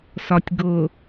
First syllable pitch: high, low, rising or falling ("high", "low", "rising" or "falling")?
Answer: low